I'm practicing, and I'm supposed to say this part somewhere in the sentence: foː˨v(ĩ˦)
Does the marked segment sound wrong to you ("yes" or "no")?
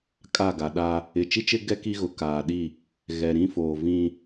no